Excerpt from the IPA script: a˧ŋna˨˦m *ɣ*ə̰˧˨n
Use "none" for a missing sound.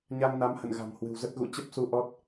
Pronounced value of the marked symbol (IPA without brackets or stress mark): h